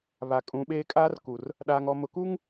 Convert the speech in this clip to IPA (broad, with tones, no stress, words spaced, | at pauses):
βa˨kʼũ˨˦ɓeː˦ kʼaː˦rku˨r | ɗaː˨ŋɔ˨ mʊ˨ku˦ŋ